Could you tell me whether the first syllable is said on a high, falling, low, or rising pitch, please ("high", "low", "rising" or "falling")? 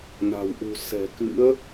low